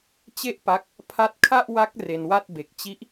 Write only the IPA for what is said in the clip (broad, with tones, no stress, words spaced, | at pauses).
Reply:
t͡ɕe˥˩ʔpa˦˥k̚ | pʰa˦˥t̚kʰa˥˩ʔwa˦˥k̚ re˧nwa˥˩t̚ be˨˩k̚t͡ɕi˦˥ʔ